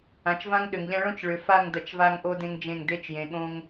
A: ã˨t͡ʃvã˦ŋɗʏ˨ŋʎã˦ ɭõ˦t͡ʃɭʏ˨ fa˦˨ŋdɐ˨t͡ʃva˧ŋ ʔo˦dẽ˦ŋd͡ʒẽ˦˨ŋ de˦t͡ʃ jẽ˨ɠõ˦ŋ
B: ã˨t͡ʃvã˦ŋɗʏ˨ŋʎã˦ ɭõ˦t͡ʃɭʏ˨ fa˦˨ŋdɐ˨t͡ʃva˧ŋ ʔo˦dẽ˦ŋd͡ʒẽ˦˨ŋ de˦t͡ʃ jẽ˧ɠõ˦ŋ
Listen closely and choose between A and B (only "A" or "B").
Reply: A